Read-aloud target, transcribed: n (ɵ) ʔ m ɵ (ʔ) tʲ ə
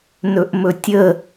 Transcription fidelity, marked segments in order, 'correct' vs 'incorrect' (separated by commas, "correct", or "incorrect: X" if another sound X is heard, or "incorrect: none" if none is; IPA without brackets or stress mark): correct, incorrect: none